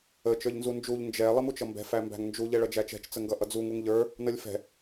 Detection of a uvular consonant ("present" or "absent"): absent